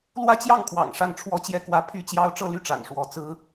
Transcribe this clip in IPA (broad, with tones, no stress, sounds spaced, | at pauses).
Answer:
l w ä˥˧ t͡ɕ j ɑ˥˩ ŋ kʰ w ɑ̰˨˩ ŋ ʂ a˥˩ n ʈ͡ʂʰ w ɔ˥ t͡ɕ j ɛ˥ k w ä˥˩ pʰ y˥ t͡ɕ j ɑ˥ ʊ̯ ʈ͡ʂ ɤ˥˧ l y˥˩ ʈ͡ʂ a̰˨˩ n ʂ w ɔ˧˥ t͡s ɹ̩˥